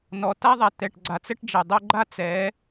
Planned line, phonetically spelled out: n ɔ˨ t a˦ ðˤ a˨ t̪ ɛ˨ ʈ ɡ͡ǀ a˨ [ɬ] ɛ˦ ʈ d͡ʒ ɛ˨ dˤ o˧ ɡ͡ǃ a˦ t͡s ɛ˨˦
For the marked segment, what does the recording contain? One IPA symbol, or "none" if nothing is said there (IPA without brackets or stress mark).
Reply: t͡s